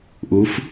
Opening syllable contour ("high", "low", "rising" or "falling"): rising